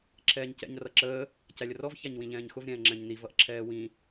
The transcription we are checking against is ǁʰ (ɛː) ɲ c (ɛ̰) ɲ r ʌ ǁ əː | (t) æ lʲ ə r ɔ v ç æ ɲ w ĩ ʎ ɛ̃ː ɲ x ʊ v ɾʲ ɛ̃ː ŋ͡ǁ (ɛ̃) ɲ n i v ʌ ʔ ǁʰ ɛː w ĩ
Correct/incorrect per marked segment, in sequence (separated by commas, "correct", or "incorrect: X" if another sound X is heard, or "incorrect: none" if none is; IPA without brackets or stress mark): correct, correct, incorrect: c, correct